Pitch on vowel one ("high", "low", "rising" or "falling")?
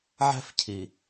high